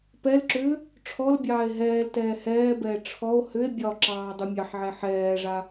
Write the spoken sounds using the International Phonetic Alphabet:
p ɛ l ǁ ʏː | ʈ͡ʂʰ ɔ l bʲ ɑː e̯ ɦ ɛː l t ɛː h ɛː b ɛː ʈ͡ʂʰ ɔ o̯ h ʏ e̯ bʲ ɒ ǁ ɑː dˤ u mʲ ɑ ħ ʕ ɛ ħ ɛː ʐ a

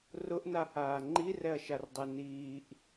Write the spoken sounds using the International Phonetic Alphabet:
r ʊ ʔ n a h aː ŋ͡ǃ i r ɛ ɐ̯ ʃ a r dˤ ɛ n iː ʔ

